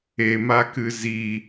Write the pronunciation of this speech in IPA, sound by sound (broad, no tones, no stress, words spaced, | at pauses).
emakɨ zi